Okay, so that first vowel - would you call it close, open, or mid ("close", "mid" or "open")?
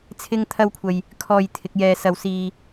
close